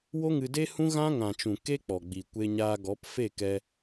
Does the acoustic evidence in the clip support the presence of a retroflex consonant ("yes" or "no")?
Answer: no